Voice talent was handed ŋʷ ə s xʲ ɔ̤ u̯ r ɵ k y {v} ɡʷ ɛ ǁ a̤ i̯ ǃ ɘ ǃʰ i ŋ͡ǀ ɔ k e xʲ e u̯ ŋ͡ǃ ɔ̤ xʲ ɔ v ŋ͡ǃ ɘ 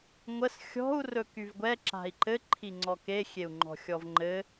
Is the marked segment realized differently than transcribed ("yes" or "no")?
no